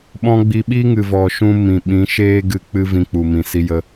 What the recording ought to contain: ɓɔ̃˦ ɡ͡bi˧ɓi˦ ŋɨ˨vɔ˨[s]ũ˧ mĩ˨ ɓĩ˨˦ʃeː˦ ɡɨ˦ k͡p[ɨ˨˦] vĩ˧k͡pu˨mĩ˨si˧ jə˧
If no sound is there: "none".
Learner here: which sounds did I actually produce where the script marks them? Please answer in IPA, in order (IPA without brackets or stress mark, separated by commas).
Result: ʃ, ɨ˦